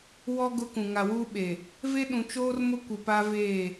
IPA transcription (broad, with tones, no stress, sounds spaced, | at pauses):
w ɔ˦ ɡ ʊ˦ k ũ˨ ŋ a˨ w uː˦ ɓ e˨ | v e˦ ɗ ũ˨ t͡ʃ oː˦ r m ʊ˦ kʷ i˨ p a˦ v eː˦˨